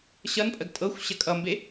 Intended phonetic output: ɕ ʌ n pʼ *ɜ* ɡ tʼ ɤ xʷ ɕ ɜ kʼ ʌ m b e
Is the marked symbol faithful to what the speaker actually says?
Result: yes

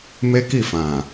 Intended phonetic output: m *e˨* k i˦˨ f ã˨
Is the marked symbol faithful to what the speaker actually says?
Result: no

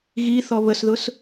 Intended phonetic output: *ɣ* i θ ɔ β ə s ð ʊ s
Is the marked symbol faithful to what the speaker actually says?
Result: yes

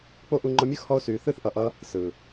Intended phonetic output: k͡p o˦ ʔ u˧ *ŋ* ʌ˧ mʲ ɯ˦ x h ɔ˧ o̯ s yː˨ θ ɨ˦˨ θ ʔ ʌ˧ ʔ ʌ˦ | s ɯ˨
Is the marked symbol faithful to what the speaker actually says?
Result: no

